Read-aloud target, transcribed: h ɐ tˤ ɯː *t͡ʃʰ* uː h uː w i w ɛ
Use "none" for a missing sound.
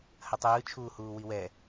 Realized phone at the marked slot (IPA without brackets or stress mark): t͡ʃʰ